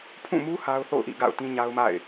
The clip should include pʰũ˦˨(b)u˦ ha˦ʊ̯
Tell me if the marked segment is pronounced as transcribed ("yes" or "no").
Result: no